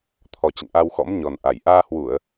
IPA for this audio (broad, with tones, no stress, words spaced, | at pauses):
t̪ʰɔ˨˩t͡ɕə̰˧˨nʔa˧wxɔ̰˧˥m ɲɔ˨˩nʔa˧˩j ʔaː˧hwu˧˩˨ə̯